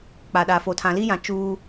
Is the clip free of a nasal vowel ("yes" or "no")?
no